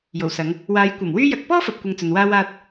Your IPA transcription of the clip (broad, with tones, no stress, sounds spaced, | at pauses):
j o˨˩ w s ɐ˨˧ ŋ | w aː˨˧ j kʷ ɐ˨˩ m w yː˥ j ɐ˧ k̚ p ɔː˥ f ɐ˨ p̚ kʷ ɐ˨ ŋ t͡s ɵ˨ n w aː˥ w aː˥ t̚